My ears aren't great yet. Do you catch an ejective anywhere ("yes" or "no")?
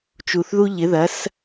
no